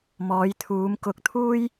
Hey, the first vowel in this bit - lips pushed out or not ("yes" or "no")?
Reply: yes